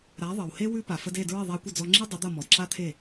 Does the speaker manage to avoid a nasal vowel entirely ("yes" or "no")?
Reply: yes